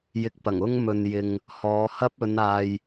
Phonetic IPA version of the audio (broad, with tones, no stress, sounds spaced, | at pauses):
j ɪ˧ k̚ p ɐ˨˩ ŋ ʊ˥ ŋ m ɵ˨ n j ɪ˨ ŋ | h ɔː˨˧ h ɐ˥ p̚ ɵ˨˧ n aː˨ j